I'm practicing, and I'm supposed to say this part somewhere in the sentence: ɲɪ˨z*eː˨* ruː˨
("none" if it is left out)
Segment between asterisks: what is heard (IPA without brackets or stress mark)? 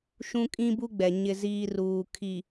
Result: iː˨